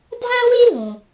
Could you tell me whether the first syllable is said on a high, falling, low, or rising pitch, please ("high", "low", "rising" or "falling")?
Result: high